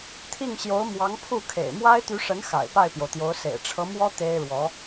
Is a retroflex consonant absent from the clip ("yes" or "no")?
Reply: no